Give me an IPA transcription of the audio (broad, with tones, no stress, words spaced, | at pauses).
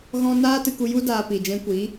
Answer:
ɣɔ̃˦ naː˦tɨ˧ku˧ju˦ daː˧pi˨ d͡ʒɛ̃˧kʷiː˨˦